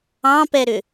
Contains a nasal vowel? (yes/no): yes